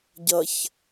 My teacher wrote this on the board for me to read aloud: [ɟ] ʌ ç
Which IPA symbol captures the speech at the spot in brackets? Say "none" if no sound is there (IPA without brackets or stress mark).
ɟ